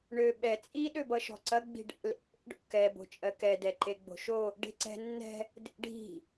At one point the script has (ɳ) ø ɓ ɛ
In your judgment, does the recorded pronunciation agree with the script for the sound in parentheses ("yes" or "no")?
yes